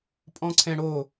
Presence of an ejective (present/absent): present